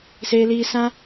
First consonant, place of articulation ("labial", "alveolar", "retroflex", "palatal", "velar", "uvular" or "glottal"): alveolar